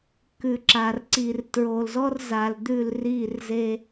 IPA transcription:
k ʉ˨ ǁ a˨ r ǀ i˨ r t ɹ o˨ l z ɔ˦ r z a˨ l d̪ ʉ˦˨ l r i˦˨ r z e˦

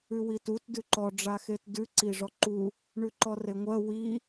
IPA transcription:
ʉ w i t u t d ʉ ǃ ɔ ɖ͡ʐ a x e t d ʉ ǀ i ʐ ɔ ǃ u | ɳ ʉ ǃ ɔ r e ŋʷ ɜ w i

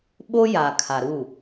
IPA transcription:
ɓ o˦ j a˨ kʰ a˨ ɾ u˦˨

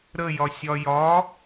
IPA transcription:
ɾ ə j ɒ sʲ ɒ j ɒ

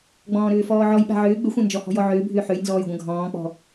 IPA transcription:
ɡ͡b ɔ̃ː ɾ ʏː f ɔː ʕ ɔ j ɓ a̤ ʕ ʏː ɡ͡b ʏ xʷ ã n d͡ʒ ɔ h ɔ̤ j ɔ ʕ ʏː bʱ ʏː ħ ø j n z ɔː j ɡʷ ɐ̃ ɡʱ ɔ̃ː k͡p ɔ̤

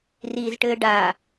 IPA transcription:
r iː z ʈ ɘː ɖ a

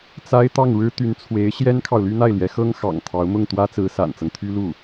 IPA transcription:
t͡s a˥ ɪ̯ t̪ ɑ˥˩ ŋ ɻ ɻ̩˥ t̪ y˧˥ n t͡sʰ w e˧˥ ɪ̯ ɕ j ɛ˥ n kʰ ɑ˨ ʊ̯ l y˥ n̪ a˥˩ ɪ̯ l j ɛ˧˥ x ɤ˥ ŋ x ɑ̰˨˩ ŋ t̪ʰ ɑ˧˥ ʊ̯ m ʊ˥˩ ŋ t̪ w ä˥ t͡s ɹ̩˧˥ s a̰˨˩ n t͡s ɤ˦ ŋ t̪ʰ y˥ l u˥˩

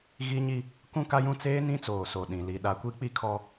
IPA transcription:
ɣ i˦ ɲ i˦ | k ũ˦ k a˦ j ũ˦ t͡s eː˦ n ĩ˦ t͡s oː˨ s o˨ ɗ ĩ˨ l i˨ ɗ a˨ kʷ i˦ k͡p i˦ kʰ ɔ˦

